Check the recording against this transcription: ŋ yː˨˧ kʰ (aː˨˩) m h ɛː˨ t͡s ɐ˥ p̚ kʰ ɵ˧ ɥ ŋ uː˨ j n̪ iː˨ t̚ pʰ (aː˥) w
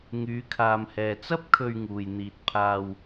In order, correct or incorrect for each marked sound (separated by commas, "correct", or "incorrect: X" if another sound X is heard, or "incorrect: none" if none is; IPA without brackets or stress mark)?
incorrect: aː˨, incorrect: aː˧